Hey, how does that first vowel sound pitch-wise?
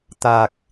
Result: low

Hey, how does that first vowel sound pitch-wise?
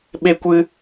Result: high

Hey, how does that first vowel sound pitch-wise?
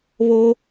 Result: high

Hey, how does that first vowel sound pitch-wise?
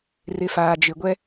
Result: low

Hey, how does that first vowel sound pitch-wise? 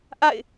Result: falling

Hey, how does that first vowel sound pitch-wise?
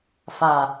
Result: low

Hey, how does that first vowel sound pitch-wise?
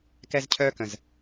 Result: high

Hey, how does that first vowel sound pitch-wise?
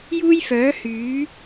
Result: high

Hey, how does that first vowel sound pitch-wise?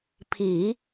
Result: low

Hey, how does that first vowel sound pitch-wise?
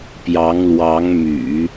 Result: rising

